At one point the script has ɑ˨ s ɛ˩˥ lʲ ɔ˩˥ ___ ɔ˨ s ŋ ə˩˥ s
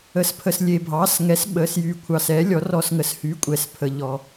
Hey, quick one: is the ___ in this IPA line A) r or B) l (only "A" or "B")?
A